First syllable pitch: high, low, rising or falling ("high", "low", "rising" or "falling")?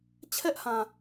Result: high